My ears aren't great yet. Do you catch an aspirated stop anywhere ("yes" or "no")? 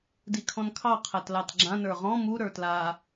yes